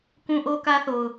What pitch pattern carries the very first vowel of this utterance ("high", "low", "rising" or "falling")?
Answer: high